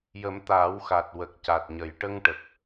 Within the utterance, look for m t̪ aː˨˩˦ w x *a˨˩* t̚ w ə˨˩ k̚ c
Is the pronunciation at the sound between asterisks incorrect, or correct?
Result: correct